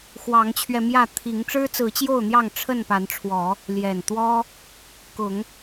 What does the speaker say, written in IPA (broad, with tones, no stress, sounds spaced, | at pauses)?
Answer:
x w ɑ˨˦ ŋ t͡ɕʰ ɥ ɛ˧ m j ä˥˨ t̪ʰ i˨˦ ŋ ʈ͡ʂ ɻ̩˦ t͡s ɹ̩˨˦ t͡ɕ j o˥˨ ʊ̯ n̪ j ɑ˥˨ ŋ ʈ͡ʂʰ ə˥˨ n p a˨˦ n ʈ͡ʂʰ w ɔ˨˦ | l j ɛ˨˩ n t̪ w ɔ˦ | k ʊ˨˦ ŋ